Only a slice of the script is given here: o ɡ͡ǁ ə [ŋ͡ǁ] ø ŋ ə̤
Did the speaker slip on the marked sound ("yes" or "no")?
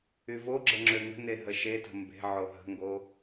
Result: no